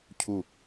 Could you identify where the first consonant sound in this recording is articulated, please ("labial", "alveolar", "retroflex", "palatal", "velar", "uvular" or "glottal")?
palatal